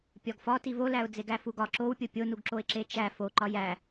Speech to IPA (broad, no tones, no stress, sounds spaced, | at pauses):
pʲ ɒ ɡ f ɒ t i v o l æ ʊ̯ d͡z e ɡ æ f u ɡ ɒ ǁ o w pʲ o pʲ o n u ɡ ǁ o ɪ̯ ǁ e t͡ʃ æ f o ǃ ɒ j æ